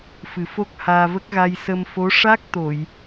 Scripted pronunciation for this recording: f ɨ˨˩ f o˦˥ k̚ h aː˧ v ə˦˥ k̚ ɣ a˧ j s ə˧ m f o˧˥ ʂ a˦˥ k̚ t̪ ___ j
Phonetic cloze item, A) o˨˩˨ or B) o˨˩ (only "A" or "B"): A